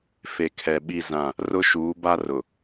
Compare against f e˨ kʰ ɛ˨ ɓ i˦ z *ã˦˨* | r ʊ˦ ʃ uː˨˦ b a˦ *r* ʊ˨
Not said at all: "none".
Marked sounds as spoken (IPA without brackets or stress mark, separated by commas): ã˦˨, r